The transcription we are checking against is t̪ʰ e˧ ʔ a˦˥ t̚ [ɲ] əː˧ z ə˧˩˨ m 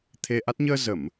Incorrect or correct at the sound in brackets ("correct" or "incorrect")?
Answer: correct